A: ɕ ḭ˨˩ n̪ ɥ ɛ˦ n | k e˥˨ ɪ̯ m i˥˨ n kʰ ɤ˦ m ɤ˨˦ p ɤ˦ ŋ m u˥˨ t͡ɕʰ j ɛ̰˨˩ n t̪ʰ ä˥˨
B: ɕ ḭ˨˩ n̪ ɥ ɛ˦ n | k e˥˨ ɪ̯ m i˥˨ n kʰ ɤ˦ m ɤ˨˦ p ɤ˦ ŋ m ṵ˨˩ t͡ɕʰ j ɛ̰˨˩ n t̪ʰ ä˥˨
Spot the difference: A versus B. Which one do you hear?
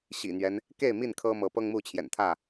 A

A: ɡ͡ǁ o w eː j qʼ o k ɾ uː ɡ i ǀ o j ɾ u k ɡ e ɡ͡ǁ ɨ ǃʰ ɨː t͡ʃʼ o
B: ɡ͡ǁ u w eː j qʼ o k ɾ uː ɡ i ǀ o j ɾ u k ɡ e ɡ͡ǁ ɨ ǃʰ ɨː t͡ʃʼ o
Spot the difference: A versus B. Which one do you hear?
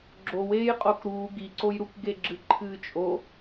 A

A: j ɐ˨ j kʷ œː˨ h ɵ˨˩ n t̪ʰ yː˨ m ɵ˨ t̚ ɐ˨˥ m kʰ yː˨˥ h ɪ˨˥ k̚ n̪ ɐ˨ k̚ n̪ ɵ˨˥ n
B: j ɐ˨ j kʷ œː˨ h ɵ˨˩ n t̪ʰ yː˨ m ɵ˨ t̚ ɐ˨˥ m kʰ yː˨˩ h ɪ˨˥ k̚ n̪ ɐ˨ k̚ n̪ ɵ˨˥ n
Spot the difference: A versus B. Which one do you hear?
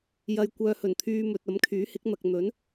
A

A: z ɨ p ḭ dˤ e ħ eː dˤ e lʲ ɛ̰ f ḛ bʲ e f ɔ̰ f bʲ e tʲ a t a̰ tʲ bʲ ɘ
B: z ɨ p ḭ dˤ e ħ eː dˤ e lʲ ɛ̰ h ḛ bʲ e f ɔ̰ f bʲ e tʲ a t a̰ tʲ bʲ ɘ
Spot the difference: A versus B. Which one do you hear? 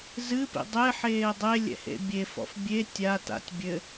B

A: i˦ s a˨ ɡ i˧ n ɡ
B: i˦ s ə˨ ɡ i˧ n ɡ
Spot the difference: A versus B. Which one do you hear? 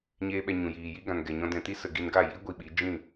B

